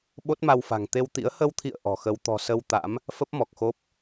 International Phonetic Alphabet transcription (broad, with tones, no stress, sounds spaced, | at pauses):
ɓ o˦˥ t̚ m a˧ w f a̤˨˩ ŋ t̪ e˧ w t̪ ḭ˧˥ ə̯ h ə˧ w t̪ʰ ḭ˧˨ ə̯ ʔ ɔ̤˨˩ x ə˧ w t̪ ɔ̤˨˩ s ə˧ w t̪ a̰˧˥ m | f ə˦˥ p̚ m ɔ˨˩ k̚ x o˦˥ p̚